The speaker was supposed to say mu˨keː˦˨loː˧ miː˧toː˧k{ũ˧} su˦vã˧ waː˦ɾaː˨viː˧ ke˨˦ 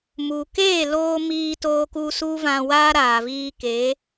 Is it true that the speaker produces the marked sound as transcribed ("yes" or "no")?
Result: no